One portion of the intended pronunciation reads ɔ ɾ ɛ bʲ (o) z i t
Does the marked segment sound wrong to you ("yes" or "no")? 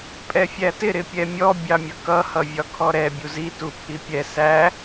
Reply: yes